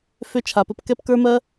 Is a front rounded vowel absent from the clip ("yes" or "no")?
no